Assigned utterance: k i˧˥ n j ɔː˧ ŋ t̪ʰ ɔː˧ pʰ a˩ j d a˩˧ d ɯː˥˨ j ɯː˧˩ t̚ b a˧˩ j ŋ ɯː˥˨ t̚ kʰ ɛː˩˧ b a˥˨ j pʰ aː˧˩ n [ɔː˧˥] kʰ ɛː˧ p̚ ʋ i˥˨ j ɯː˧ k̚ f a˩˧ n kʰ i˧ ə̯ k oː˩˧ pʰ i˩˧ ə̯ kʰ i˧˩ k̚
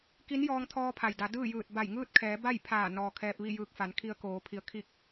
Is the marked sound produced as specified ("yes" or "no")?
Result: no